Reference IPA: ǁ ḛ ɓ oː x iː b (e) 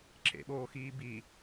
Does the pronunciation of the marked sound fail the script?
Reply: yes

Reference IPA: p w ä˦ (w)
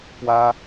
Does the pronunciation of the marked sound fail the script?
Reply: yes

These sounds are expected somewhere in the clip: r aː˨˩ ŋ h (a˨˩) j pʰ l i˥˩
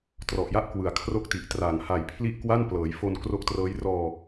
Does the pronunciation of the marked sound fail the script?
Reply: no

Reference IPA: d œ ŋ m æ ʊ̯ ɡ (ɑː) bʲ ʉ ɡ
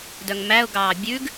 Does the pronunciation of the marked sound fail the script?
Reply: no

